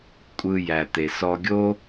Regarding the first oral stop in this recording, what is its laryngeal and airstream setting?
ejective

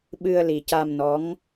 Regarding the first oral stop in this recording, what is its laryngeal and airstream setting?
implosive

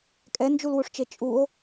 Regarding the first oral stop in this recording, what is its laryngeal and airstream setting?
ejective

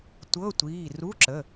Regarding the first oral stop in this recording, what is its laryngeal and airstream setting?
plain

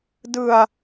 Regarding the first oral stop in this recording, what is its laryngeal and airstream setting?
plain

